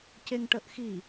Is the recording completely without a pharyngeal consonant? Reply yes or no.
yes